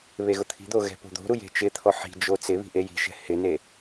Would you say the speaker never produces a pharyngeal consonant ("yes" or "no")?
no